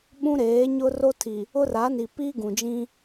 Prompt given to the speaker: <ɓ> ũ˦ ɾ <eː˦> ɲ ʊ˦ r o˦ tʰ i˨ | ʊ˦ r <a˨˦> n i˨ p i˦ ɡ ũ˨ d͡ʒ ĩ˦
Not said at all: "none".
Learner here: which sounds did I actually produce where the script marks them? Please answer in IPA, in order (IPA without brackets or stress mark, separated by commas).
ɓ, eː˨˦, a˨˦